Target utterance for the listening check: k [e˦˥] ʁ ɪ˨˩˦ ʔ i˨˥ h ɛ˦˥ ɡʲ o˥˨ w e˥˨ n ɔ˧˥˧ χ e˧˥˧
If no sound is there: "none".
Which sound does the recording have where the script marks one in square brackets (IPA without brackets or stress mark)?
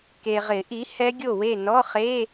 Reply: e˨